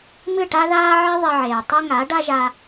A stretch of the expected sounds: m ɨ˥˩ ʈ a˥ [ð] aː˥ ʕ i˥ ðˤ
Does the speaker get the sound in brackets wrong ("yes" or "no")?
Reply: no